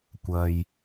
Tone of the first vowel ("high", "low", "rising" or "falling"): low